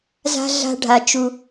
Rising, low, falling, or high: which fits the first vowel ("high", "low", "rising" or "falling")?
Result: high